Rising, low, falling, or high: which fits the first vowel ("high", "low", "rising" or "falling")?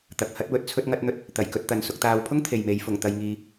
low